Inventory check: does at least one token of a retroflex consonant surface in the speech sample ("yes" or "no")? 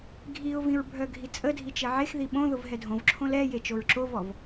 no